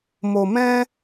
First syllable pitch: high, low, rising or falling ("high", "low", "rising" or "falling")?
low